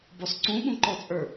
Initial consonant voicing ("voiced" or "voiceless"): voiced